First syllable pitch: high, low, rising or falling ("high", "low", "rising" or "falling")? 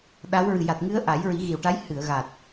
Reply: rising